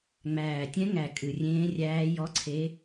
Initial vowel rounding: unrounded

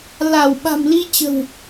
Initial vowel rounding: unrounded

